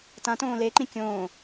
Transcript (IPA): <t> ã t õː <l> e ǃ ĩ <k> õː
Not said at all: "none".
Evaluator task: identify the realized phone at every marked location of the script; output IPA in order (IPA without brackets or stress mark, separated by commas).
t, l, kʲ